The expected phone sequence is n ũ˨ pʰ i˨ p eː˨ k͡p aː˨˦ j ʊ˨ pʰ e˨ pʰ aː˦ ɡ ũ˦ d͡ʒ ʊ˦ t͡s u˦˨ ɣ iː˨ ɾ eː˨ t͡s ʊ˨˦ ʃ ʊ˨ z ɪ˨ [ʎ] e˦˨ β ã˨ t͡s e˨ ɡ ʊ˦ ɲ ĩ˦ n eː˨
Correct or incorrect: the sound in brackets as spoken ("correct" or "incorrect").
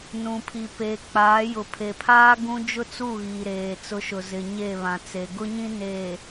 incorrect